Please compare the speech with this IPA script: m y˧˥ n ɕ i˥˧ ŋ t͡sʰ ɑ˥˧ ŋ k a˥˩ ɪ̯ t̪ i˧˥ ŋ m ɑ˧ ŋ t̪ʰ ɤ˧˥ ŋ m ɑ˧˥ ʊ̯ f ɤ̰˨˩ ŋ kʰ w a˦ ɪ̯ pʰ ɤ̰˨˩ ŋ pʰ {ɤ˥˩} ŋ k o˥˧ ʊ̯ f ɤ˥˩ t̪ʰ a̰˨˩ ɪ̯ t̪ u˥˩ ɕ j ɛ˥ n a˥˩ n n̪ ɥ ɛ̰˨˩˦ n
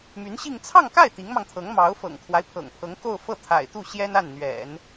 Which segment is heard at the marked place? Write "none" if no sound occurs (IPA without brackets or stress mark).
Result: ɤ˧˥